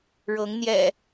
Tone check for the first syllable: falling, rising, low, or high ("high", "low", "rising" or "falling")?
rising